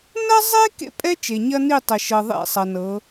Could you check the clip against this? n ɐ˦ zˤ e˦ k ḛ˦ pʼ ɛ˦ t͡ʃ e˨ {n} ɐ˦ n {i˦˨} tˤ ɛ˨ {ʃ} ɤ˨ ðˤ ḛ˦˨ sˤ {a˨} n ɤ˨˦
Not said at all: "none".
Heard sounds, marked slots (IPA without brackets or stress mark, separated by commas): ɲ, i˦˨, ʃ, ɐ˨